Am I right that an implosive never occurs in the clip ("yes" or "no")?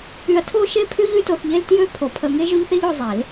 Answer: yes